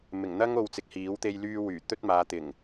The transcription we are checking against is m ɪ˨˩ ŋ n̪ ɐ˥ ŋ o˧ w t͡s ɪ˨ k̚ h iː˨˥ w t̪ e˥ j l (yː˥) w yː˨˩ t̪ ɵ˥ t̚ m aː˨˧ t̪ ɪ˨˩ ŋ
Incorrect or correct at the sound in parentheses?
correct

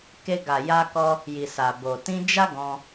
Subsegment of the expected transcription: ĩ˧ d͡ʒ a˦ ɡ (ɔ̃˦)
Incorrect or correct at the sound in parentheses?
incorrect: ɔ̃˧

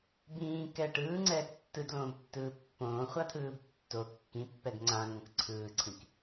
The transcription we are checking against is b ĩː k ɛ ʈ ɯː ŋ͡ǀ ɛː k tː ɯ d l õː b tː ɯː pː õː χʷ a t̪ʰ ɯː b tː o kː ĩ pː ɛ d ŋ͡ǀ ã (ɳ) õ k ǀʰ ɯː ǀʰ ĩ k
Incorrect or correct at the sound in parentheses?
incorrect: ŋ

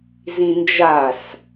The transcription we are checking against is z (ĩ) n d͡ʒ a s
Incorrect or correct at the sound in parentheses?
correct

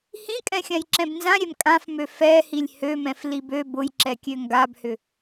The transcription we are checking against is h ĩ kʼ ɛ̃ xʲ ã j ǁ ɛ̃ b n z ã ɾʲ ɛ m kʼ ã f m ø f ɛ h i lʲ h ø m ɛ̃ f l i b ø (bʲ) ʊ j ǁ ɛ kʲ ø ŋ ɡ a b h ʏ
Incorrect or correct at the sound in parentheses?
incorrect: b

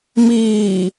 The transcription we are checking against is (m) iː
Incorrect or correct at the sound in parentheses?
correct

